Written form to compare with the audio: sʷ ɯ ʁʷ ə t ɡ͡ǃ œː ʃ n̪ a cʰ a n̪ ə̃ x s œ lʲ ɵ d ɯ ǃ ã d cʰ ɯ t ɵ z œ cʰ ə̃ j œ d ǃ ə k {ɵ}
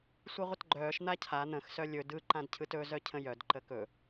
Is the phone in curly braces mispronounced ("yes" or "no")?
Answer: no